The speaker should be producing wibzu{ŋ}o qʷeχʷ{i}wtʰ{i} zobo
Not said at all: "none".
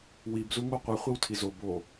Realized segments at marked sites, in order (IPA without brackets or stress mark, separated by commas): ŋ, i, i